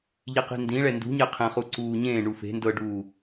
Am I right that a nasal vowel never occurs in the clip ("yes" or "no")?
no